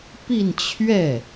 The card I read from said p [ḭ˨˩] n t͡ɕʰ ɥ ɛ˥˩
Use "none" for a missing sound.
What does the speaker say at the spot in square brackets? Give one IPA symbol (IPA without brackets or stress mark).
i˥˧